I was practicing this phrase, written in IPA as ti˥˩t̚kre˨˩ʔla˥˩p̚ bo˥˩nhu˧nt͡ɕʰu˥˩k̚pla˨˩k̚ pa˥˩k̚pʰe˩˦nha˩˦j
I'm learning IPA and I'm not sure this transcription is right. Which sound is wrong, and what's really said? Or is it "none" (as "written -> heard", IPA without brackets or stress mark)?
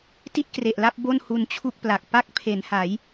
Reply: none